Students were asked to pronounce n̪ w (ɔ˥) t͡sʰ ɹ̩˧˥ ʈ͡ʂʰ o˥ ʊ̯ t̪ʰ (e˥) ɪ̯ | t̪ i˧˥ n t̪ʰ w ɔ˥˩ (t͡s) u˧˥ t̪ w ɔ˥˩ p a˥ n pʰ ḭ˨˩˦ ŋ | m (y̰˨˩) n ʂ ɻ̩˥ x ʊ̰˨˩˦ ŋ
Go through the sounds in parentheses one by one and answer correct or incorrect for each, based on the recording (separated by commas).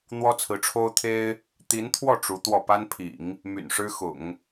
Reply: correct, correct, incorrect, correct